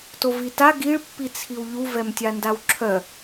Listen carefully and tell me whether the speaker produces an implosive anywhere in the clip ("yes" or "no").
no